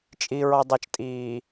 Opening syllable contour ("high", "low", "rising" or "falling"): low